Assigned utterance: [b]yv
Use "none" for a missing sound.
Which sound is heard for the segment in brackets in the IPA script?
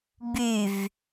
b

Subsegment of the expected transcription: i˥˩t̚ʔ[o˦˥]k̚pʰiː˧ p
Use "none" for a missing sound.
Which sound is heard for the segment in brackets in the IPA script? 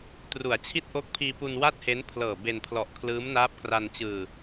o˦˥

